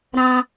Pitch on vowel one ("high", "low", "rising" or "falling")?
high